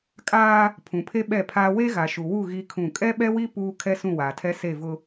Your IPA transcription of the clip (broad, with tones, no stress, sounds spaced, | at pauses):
kʼ aː˦ | pʰ ũ˨ pʰ e˦ ɓ ɛ˦˨ pʰ aː˦ w e˦ ɣ a˨ ʃ u˨ w u˦˨ ɣ i˦ kʰ ũ˦˨ kʼ ɛ˦ ɓ ɛ˦ w i˦ p uː˦ kʰ ɛ˦ s ũ˦˨ w aː˨ tʰ ɛ˦ s e˦˨ v ʊ˦